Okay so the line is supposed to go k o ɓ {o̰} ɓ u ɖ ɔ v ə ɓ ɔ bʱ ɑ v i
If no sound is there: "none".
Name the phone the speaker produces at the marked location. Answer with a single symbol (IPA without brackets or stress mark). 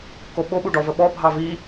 o